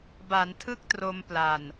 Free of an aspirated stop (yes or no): no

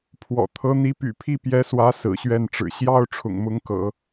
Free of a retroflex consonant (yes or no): no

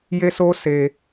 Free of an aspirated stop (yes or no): yes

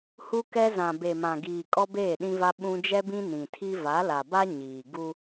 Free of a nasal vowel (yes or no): no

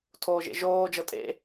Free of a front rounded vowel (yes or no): yes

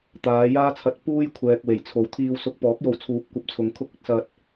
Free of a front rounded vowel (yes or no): yes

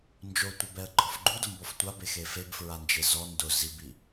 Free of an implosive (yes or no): yes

